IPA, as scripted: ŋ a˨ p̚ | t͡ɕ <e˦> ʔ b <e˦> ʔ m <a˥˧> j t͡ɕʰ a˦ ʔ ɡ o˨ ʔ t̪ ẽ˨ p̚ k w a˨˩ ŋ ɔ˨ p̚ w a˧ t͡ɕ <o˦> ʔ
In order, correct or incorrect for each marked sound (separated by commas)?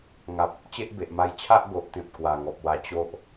correct, incorrect, incorrect, correct